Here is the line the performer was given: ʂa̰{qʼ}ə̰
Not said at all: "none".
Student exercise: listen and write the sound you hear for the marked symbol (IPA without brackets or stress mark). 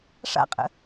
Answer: qʼ